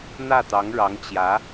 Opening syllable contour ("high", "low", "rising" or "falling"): falling